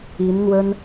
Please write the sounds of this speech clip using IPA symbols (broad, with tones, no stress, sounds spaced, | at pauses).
i˧˥ n n̪ w ə˥ n